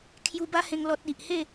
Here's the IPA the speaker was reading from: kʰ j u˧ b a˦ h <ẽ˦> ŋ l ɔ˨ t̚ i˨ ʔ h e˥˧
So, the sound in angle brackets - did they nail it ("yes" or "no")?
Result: no